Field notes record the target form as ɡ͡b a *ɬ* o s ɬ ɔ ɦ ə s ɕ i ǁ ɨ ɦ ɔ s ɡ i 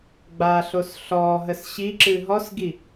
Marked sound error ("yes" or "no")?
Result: no